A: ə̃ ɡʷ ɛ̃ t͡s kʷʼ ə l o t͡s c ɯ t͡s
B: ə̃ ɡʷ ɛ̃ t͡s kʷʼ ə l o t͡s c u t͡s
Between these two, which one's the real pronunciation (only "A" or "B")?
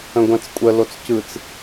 A